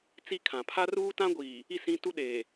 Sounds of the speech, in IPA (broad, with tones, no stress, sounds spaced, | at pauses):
t͡s i˦ kʰ ã˨ pʰ a˦ r uː˦ t ã˦ ɡʷ iː˨ | i˦˨ s ĩ˦ t u˦ ɗ eː˨